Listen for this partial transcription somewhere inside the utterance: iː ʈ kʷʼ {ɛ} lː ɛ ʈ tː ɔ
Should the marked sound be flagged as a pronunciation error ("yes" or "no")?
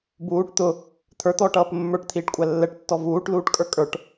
yes